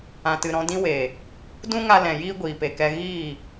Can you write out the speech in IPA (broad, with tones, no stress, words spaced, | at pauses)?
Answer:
ã˨tɨ˨ɾɔ̃˧ dĩ˧we˨ | dũ˦ŋa˧ lɛ̃˨jiː˦ ɡʷiː˨pe˨kɛ˧ ɣiː˦˨